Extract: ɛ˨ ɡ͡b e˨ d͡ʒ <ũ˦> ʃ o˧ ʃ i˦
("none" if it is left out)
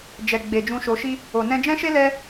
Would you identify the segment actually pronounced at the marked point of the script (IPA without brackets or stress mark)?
ũ˧